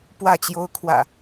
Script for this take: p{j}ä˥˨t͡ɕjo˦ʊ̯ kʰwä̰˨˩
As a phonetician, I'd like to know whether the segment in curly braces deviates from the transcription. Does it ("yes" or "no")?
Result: yes